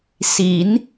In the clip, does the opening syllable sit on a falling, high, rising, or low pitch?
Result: rising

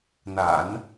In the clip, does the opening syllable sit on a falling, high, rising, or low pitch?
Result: low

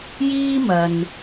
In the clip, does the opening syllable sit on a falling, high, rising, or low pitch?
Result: high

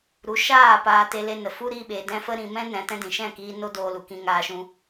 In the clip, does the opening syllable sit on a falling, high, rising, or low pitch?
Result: rising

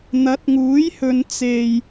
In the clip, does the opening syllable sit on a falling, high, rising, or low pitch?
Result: rising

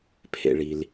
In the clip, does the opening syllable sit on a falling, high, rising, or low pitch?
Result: low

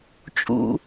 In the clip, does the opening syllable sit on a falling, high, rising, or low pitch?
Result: low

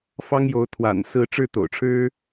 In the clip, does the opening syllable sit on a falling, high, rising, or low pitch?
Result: high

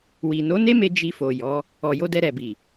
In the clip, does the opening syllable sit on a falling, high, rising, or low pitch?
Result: low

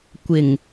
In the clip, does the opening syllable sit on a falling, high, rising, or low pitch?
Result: low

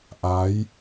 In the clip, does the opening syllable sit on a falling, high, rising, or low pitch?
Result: rising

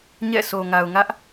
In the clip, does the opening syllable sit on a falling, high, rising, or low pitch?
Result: falling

